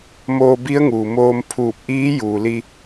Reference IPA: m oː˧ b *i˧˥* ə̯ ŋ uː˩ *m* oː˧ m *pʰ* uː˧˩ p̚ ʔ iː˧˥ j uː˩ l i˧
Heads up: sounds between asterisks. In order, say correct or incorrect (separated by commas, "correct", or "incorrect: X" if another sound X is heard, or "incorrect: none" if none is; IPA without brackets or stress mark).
correct, correct, correct